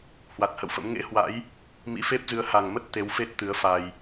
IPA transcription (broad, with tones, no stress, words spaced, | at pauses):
hwa˨˩t̚hə̰˧˨wfə̰˧˥m ŋḛ˧˥hwa̰˧˥j | mḭ˧˥fe˦˥p̚zɨ˨˦ə̯ ha˨˩ŋmə˦˥t̚ t̪e˨˦wfe˦˥t̚ t̪ɨ˨˦ə̯fa˧j